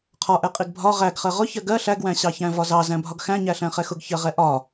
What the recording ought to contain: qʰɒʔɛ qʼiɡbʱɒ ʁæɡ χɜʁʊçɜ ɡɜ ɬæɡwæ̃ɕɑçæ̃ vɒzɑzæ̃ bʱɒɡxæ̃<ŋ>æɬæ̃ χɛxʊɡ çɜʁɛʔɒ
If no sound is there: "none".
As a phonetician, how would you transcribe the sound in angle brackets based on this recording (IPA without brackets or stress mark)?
ɲ